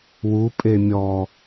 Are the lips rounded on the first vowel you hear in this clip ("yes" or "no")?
yes